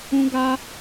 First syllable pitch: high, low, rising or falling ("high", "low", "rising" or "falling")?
high